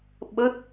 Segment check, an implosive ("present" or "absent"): present